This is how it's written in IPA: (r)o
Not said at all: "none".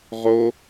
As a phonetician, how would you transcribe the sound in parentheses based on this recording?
ʁ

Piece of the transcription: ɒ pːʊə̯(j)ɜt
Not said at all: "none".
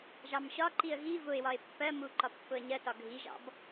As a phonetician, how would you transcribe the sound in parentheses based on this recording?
ɲ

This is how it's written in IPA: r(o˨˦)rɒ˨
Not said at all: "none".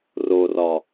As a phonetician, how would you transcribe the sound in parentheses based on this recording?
o˨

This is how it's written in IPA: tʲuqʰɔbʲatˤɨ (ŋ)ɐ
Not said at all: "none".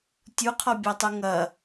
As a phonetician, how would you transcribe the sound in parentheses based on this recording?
ŋ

